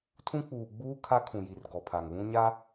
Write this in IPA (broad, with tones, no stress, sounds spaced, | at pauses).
tʰ ũ˦ k͡p uː˨ ɡ͡b uː˦ kʰ a˦ kʰ ũ˨ j i˨ r ɡ ɔ˨ pʰ a˨ ŋ β ũ˦ ɲ a˦